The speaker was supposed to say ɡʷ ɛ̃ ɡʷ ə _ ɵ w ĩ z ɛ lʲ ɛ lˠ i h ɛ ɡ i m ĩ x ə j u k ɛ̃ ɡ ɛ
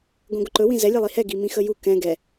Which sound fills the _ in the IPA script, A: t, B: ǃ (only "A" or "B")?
B